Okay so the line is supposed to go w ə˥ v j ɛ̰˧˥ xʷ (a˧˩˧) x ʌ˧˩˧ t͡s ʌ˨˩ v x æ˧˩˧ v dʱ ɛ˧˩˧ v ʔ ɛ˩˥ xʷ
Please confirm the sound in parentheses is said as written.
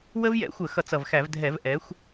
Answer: no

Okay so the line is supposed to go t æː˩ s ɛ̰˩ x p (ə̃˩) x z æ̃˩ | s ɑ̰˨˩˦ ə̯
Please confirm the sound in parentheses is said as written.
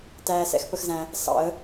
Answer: no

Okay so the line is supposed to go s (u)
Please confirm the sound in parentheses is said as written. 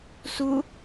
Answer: yes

